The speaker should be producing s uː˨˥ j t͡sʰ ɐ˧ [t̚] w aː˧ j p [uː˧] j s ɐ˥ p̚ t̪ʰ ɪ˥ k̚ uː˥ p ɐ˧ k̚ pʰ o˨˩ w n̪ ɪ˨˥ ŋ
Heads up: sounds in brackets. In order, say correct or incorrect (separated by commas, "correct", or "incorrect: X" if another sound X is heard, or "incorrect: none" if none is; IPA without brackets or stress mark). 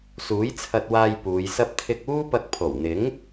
correct, incorrect: uː˨˧